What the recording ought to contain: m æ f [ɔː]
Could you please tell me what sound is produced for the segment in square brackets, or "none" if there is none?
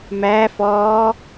ɔː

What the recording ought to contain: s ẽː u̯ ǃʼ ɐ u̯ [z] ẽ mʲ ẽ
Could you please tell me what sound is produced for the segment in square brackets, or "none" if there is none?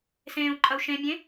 ʃ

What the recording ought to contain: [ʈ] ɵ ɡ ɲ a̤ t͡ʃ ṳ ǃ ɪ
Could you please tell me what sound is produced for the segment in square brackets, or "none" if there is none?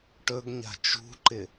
ʈ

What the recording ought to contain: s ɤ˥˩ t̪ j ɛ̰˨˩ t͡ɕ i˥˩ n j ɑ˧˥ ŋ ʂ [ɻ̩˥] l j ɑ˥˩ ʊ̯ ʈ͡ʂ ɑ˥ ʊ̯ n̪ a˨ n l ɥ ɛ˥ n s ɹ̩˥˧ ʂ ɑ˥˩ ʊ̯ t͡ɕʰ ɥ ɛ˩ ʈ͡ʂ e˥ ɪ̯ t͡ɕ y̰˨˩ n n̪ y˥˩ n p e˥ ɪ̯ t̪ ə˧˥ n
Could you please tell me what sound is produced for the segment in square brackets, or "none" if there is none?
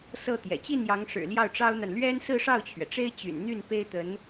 ɻ̩˨˩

